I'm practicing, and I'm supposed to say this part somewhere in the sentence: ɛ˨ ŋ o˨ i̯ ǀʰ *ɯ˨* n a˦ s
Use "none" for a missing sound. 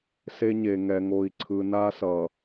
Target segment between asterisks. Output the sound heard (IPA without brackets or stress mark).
ɯ˨